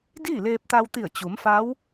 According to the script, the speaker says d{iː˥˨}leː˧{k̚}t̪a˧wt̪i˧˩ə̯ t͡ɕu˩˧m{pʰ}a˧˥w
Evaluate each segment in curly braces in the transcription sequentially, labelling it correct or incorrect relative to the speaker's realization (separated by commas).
correct, incorrect, incorrect